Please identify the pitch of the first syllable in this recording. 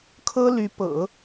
high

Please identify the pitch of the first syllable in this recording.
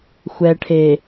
low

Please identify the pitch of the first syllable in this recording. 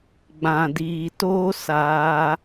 low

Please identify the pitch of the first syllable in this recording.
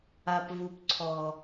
low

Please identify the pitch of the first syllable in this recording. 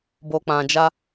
low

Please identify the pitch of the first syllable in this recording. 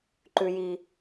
high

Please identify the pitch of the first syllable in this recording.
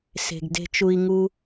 low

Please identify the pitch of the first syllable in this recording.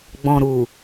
low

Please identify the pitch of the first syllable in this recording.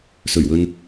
low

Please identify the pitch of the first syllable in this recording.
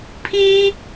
high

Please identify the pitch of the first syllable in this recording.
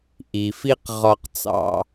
low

